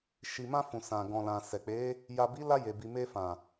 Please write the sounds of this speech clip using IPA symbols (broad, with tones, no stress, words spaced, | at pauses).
ʃi˨mã˧ fũ˨sã˨ɡɔ̃˨lã˨ sɛ˨k͡pe˨˦ | ja˨bi˨˦la˧ je˨bi˨ me˧fã˨